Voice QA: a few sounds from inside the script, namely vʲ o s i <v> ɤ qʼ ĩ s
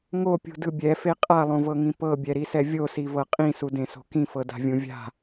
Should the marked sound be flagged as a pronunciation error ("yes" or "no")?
no